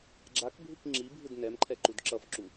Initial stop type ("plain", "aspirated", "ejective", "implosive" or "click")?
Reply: click